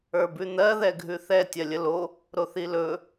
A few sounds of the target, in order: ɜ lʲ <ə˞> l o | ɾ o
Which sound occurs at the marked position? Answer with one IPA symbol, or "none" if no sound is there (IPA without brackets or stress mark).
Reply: ə